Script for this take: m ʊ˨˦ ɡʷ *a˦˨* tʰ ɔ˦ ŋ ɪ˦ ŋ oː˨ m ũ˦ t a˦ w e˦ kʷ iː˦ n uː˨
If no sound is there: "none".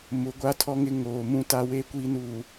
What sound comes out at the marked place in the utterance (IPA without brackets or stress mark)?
a˦